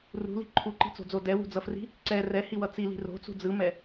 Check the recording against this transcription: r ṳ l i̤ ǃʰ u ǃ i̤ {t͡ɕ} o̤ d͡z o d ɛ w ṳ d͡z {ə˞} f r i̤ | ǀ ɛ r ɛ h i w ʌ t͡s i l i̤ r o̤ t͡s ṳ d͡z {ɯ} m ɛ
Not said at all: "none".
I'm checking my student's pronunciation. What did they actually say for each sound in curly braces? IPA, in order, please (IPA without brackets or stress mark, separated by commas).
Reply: t͡s, ʌ, ɯ